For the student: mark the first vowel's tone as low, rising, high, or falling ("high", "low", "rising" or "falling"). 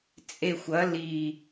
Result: low